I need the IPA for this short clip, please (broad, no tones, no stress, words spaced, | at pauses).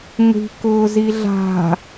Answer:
ŋʷi̤ kʊːziɮa̤